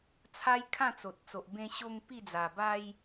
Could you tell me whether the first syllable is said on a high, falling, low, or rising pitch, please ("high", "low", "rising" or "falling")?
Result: high